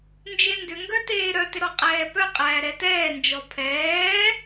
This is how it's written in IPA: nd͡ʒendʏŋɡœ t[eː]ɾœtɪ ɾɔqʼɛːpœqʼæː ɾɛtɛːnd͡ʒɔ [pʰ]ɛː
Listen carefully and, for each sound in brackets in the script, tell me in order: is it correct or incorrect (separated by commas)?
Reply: correct, correct